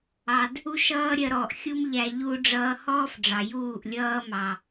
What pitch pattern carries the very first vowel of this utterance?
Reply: low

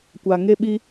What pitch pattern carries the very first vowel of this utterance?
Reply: low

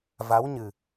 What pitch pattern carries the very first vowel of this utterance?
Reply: rising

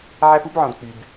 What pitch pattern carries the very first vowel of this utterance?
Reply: low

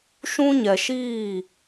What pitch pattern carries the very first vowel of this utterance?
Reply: high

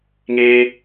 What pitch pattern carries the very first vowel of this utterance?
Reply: high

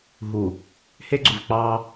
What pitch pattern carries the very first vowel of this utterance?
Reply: low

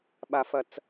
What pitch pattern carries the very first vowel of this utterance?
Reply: high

